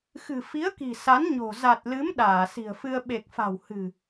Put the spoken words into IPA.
xɨ̤˨˩fi˨˦ə̯ki̤˨˩ sa˨˦n ɲo̤˨˩ za˨˩t̚lɨ˨˦m ɗaː˧˩si̤˨˩ə̯fɨ˧ə̯ ɓe˨˩k̚fa̤˨˩w hɨ̤˨˩

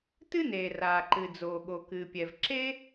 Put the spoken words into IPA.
tɨ˥neː˩ raː˩ǃɨ˩ d͡zoː˩ɠo˩ kɨː˩pʲɛ˩v ǁe˥

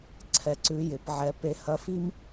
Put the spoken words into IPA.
ǀʰɛ˧ǀʉ˧˥ jɪ˩˧pʕɛ˧˥ pe˧hɐ˧˥fi˥m

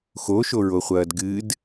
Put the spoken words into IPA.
xoʃoɹoχʷɐːd ɡɨd

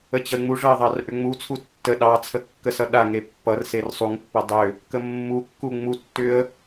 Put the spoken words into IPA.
ət͡ɕʌɪ̯ŋ͡muʐʌɪ̯ ðˤɑrʔʏŋ͡mut͡sʰu tːə ɗɑt͡sʰə kːəsʌɗaŋe pːʌrser sˤuŋpːʌ dˤʏ | kəmːukːu ŋ͡mutːʏə̯

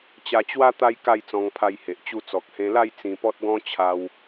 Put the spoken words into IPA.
t͡ɕa˧t͡ɕwa˦ t̪a˦j ka˥˧jt͡sɔ̃˧ŋpʰa˧jhe˨ʔ t͡ɕu˧ t͡sɔ˨k̚hẽ˧la˥˧j t͡sĩ˧pɔ˦t̚ɡɔ̃˦t͡ɕʰa˧w

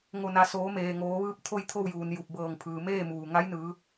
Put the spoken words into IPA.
ŋo˧˩na˩˧ soː˩˧meː˩ ŋoː˩˧ʋɯː˧˥p̚ t̪ʰo˥˨jt̪ʰo˥˨wjuː˩n ju˧˩p̚bɤː˧˩ŋ pʰɯː˩meː˥˨muː˩ ŋa˧˥jnɯː˩˧

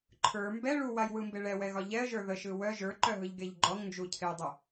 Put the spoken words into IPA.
ǃʰə˞ mbɛ ɭuwajwɯmbe ɭɛwɛɣɒ ʎɛə̯ʒə˞ ðəʃɯ wœ ʒə˞ǃœɦɯʎɡeʎ ɡ͡ǃɔŋnd͡ʒucʰejdˤɯ

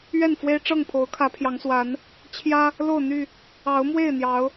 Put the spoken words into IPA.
ɥɛ˥˨nfwe˦ɪ̯ʈ͡ʂɤ˥˨ŋpʰo˨˦ʊ̯ kʰä˨˦pʰjɑ˨˦ŋswa˨˦n | t͡ɕʰjä˦ | lo˥˨ʊ̯n̪y˥˨ | ɑ˨˦ʊ̯mwe˥˨ɪ̯ n̪jɑ˨˦ʊ̯

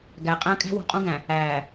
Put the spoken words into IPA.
ɡæ˨qʼæ̃˦ kʼæ̤˦wṳ˨qʼũ˦ɡæ̃˨ | æː˨

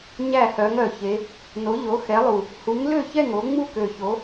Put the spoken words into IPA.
ɲæ˥˨hœ˨˦ŋœ˨˩çe˨˦ | no˨˦ʎo˨˦xɛ˨˦lˠu˨˩ | hu˨˦ŋlø˥˨ çɛ˥˨ŋo˨˦ ŋ͡mu˥˨kø˨˩ço˨˦

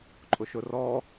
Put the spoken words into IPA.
ǃʼʊʃʊrɔ

